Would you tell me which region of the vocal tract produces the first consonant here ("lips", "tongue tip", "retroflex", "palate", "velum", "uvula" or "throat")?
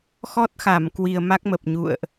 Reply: velum